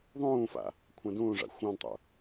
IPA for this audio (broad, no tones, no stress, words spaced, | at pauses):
ðˤũːfa̰ | kʷʰãdũːʐa̰ xʷãdtˤṵ